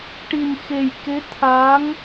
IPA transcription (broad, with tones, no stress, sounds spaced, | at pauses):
ʈ i˨˩ n x e˨˩ j k e˧˥ t̪ʰ a˧˥ ŋ